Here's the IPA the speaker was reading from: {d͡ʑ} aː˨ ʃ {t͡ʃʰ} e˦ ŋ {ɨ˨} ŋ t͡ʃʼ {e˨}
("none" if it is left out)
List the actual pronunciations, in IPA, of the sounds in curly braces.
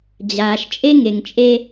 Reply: d͡ʑ, t͡ʃʼ, e˨, e˦

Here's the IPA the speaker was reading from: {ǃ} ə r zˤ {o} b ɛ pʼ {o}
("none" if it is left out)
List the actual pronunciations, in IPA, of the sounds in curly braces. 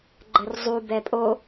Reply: ɡ͡ǃ, u, o

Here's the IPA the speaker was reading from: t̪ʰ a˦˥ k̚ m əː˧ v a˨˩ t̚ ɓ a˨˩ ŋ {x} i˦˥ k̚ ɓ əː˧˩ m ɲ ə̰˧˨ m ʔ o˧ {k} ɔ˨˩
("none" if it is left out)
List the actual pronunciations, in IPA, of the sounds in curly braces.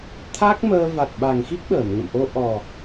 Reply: x, ʔ

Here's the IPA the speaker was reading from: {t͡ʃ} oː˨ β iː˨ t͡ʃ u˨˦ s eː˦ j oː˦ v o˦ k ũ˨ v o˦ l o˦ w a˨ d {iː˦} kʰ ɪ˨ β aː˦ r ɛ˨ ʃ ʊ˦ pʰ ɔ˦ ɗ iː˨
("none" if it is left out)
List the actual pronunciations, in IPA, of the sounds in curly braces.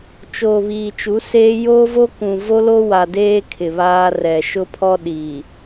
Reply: t͡ʃ, eː˦

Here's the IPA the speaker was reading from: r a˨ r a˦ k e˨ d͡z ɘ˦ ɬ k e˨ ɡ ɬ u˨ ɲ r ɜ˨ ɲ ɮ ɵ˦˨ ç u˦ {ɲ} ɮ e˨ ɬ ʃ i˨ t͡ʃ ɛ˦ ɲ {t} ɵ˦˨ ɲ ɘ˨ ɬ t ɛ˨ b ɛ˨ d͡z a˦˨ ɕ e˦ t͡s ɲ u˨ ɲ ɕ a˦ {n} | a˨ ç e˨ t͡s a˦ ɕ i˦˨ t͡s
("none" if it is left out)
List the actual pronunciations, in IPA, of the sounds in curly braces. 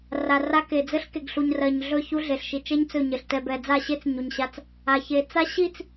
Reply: none, t͡s, t͡s

